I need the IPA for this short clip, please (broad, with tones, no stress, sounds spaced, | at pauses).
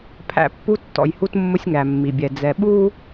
pʰ æ̰˨ pː u˦ tː ɔ̰˨ j h u˦ t mː ʊ˦ sʲ ŋ æ˨ mː i˨ bʲ ɛ˨ d͡z ɛ˨ ɓ uː˦